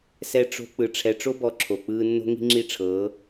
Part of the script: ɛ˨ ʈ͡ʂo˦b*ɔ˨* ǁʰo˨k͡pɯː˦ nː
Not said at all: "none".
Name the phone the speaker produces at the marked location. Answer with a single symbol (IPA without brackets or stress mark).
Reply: ɔ˨